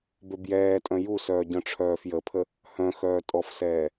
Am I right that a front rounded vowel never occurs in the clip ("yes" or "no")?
no